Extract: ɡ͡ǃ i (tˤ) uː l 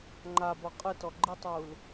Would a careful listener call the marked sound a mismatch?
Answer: no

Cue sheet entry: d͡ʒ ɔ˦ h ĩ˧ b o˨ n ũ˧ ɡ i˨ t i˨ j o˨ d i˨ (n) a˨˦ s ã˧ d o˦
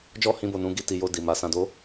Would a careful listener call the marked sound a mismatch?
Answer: yes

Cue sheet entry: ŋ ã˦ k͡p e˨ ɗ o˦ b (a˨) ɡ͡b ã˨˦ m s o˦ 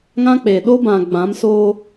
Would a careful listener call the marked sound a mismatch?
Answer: yes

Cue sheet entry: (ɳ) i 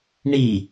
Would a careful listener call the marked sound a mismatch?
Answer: no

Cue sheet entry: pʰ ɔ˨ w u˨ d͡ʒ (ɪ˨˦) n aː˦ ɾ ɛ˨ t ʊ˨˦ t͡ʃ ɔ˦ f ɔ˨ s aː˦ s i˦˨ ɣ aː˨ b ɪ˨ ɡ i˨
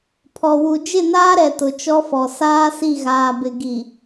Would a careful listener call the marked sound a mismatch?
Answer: yes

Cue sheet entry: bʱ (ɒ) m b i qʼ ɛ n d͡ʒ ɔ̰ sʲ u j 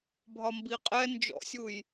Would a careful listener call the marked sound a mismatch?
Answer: no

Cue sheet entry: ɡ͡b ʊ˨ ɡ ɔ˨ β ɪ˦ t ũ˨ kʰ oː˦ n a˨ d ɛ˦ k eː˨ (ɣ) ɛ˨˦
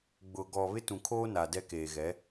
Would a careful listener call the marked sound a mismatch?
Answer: no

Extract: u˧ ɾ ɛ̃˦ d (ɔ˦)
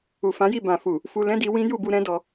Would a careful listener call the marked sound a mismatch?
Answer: yes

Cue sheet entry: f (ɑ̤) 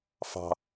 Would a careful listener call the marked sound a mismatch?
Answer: no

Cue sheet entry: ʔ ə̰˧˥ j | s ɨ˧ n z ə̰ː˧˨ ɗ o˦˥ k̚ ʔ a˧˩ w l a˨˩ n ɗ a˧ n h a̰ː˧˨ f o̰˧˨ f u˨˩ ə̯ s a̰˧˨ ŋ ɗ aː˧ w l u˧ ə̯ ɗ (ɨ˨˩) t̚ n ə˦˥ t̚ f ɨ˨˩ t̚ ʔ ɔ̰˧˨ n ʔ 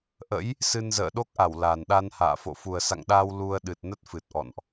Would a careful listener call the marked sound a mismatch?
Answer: no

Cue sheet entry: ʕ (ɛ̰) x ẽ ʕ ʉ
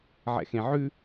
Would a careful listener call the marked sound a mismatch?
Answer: no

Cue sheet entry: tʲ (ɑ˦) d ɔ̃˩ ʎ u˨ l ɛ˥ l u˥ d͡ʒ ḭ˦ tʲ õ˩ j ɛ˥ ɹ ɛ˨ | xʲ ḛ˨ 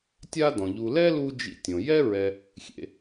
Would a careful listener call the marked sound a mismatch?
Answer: yes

